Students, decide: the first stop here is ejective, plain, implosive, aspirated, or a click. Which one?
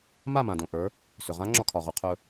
plain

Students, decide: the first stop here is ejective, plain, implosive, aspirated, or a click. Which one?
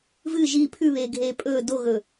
aspirated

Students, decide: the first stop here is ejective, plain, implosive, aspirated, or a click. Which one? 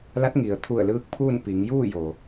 plain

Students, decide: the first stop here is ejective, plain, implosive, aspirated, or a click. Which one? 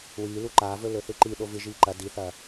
click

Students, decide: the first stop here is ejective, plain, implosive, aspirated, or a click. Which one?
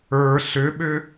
implosive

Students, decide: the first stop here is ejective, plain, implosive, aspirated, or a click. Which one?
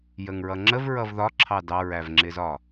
click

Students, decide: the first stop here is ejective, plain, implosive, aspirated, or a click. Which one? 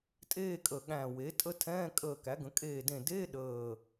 ejective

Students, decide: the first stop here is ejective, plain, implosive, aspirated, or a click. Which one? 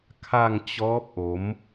aspirated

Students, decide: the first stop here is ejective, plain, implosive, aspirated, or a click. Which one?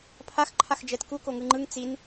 aspirated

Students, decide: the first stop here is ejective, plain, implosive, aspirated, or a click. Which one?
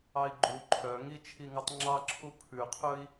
click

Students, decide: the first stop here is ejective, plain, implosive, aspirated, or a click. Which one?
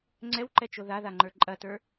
click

